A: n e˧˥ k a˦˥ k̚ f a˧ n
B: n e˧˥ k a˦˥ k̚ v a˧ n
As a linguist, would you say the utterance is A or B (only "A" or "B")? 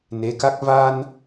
B